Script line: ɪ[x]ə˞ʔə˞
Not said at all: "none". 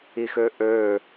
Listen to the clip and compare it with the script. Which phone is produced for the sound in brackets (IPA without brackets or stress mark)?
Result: x